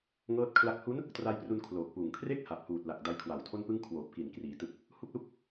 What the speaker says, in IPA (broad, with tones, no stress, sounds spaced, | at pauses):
ŋ ɤː˥˩ t̚ kʰ l a˥˩ k̚ h u˦˥ n | t r a˦˥ j p r u˧ n kʰ l oː˨˩ k̚ p uː˨˩ ŋ kʰ r e˥˩ k̚ h a˨˩ p̚ h uː˨˩ t̚ l a˨˩ k̚ d a˦˥ j kʰ w a˨˩ w tʰ o˥˩ n p ɯ˥˩ ŋ kʰ w oː˨˩ p̚ k i˨˩ n k r iː˩˦ t ɯ˨˩ k̚ | h u˥˩ k̚ l u˥˩ k̚